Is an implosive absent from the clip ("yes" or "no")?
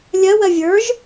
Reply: yes